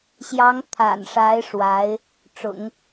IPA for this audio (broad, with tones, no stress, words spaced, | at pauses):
ɕjɑ˧˥ŋt̪ʰa̰˨˩nʂa˧˥ɪ̯ ʂwa˧˥ɪ̯ | ʈ͡ʂʊ̰˨˩˦ŋ